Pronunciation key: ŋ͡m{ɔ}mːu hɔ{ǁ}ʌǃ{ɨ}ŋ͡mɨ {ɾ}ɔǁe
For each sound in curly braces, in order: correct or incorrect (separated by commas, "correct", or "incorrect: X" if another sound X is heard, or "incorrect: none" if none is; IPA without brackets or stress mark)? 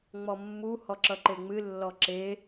correct, correct, incorrect: e, incorrect: lː